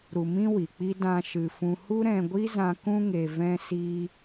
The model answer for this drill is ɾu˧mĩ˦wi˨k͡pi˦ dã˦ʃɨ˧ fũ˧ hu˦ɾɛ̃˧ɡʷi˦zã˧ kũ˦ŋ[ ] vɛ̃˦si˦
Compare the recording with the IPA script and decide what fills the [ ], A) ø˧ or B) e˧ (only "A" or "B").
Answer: B